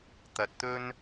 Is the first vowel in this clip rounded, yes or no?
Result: no